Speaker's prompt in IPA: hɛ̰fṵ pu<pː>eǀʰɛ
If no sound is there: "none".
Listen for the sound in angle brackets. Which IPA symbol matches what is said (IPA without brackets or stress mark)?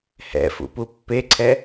pː